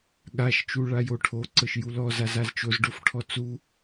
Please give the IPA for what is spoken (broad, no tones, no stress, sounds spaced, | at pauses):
ɠ a ʃ t͡ʃ u ɭ a j o ʈʰ o ǀ ɤ ʃ j u l ɔ z a z a z t͡ʃ o z ɖ o f ʈʰ ɔ t͡s u